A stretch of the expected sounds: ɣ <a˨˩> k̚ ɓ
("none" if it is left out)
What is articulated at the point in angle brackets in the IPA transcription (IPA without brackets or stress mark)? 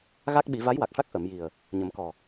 a˦˥